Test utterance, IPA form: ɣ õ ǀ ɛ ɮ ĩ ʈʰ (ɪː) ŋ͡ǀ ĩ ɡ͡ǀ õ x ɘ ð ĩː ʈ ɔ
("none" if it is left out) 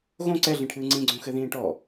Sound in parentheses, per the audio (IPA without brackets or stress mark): ɨː